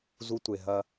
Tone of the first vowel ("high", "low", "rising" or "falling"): high